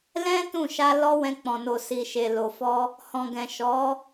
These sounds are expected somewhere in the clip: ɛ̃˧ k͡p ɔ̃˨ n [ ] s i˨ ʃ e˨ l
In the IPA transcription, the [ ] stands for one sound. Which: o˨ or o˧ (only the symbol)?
o˨